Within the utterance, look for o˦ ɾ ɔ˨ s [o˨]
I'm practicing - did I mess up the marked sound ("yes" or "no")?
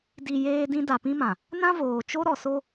yes